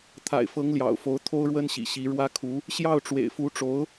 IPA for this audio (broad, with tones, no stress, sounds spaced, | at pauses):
t̪ʰ a̰˨˩ ɪ̯ f ɤ˧˥ ŋ l j ɑ̰˨˩ ʊ̯ f o˧˥ ʊ̯ t̪ʰ o˥ ʊ̯ ɻ w ə˥ n ɕ ḭ˨˩ ɕ i˧˥ ɻ w ä˥ kʰ u˧˥ | ɕ j ɑ˥˩ ʊ̯ ʈ͡ʂ w ḛ˨˩ ɪ̯ f u˧˥ ʈ͡ʂ o˧˥ ʊ̯